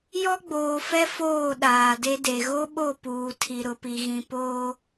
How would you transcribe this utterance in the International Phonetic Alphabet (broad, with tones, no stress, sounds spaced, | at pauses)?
j ɔ˦ ɡ͡b oː˨ f ɛ˦ f oː˦˨ ɗ aː˨ d e˦ d e˨ ɣ o˦ ɓ o˦˨ p uː˨ tʰ i˨ ɾ ʊ˨ p i˨ ɣ ĩ˨ p oː˦